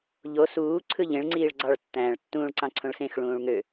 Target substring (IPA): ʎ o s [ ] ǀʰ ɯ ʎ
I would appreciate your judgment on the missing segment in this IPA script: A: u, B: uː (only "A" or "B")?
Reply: B